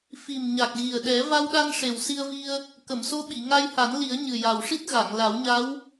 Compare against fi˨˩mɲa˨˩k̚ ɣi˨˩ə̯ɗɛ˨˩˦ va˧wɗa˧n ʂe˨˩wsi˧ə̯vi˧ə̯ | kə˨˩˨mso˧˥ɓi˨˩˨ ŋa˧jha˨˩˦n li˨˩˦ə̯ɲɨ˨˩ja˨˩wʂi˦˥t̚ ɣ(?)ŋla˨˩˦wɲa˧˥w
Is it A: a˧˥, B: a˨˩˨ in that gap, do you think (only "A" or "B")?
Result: B